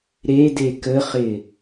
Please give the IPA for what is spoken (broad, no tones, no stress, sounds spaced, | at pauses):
ɾ e d e k ə χ ɪ